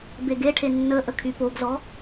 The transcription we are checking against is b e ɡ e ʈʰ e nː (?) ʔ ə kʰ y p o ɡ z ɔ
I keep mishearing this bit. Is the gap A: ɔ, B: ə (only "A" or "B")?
B